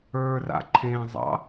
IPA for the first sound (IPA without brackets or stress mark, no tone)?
ə˞